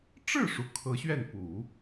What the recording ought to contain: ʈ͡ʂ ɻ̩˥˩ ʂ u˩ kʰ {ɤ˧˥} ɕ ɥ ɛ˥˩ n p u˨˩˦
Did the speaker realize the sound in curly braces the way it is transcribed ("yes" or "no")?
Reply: yes